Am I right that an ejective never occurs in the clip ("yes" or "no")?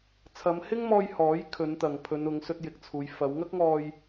yes